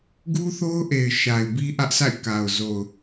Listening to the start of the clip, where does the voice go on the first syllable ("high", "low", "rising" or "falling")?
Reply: high